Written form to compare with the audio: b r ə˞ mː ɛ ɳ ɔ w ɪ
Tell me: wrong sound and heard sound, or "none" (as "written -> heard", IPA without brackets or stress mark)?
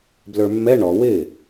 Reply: r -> l